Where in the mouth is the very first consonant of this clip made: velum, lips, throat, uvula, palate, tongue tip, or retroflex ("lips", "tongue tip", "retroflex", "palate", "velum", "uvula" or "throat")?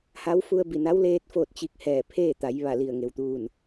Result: throat